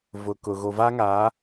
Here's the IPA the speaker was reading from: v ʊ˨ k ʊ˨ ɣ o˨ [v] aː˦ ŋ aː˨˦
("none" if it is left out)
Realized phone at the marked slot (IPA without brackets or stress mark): v